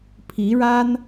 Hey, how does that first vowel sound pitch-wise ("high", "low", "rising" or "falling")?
rising